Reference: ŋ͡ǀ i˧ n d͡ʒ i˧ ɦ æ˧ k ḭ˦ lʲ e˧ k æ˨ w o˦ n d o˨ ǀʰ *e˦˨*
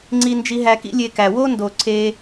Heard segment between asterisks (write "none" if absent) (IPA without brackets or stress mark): e˧